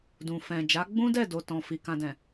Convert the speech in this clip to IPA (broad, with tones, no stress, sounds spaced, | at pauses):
d ũ˨ f ɛ̃˨ d͡ʒ a˨˦ ɡ͡b ũ˦ d ɛ˦˨ d o˧ t ɔ̃˨ f i˧ k ã˧ d ɛ̃˨